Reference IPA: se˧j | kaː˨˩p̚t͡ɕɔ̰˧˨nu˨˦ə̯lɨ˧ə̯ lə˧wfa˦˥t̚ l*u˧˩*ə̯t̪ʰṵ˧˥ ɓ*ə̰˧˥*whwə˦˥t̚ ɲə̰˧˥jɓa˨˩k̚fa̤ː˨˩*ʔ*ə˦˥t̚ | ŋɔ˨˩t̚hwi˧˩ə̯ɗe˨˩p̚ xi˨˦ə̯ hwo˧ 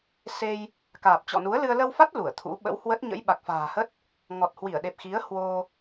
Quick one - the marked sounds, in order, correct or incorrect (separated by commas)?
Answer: correct, correct, incorrect